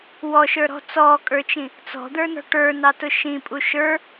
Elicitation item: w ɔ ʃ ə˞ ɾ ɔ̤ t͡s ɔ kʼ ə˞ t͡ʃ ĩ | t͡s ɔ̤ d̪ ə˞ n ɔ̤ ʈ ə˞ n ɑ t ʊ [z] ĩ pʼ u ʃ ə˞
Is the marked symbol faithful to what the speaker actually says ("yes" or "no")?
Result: no